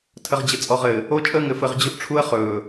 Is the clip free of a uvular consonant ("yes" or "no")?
no